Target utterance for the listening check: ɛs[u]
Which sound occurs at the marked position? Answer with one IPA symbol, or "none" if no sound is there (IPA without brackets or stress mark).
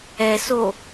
o